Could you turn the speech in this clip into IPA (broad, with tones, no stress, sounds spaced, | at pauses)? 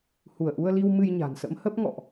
h u˧˩ ə̯ ʔ u˧ ə̯ l i˧ w m ɨ˧ j ɲ a̤˨˩ n s ə̰˧˥ m h ə˦˥ p̚ ŋ ɔ̰˧˨ ʔ